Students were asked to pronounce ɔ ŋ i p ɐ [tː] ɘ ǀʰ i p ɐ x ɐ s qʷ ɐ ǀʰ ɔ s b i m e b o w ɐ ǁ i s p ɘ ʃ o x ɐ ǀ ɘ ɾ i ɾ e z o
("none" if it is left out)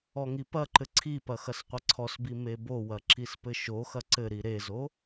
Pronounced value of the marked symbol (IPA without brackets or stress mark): ǃ